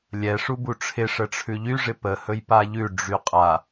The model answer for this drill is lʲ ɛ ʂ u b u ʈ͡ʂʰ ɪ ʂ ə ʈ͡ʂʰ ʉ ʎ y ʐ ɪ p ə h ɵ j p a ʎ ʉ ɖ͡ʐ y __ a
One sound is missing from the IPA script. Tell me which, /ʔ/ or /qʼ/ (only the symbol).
qʼ